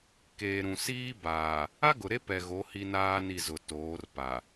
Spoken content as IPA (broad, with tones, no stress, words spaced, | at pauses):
keː˨ ɾũ˨ siː˦baː˨ | a˦ɡʊ˨ɾe˦ pɛ˨ɣo˨˦ hi˦naː˦ni˦˨zʊ˨ toː˨˦rpa˨